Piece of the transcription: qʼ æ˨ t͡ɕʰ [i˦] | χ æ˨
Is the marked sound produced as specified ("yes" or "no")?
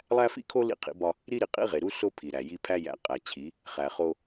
no